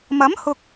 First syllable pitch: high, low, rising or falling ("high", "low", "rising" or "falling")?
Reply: rising